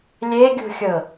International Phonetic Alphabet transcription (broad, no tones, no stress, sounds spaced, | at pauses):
lʲ e ɡʲ ṳ xʲ ɤ